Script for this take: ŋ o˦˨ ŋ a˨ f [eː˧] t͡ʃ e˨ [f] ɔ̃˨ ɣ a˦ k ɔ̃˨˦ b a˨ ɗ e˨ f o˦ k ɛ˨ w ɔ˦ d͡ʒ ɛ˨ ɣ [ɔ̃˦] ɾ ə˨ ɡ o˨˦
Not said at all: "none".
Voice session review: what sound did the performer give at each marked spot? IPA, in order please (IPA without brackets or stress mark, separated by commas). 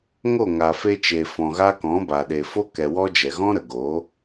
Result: e˧, f, ɔ̃˦